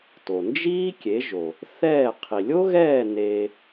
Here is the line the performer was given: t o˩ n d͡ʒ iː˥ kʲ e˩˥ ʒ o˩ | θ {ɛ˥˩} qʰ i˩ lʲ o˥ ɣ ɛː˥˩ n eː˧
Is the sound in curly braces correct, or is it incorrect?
incorrect